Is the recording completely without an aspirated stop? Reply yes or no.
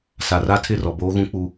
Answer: no